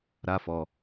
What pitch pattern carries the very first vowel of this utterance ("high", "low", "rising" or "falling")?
high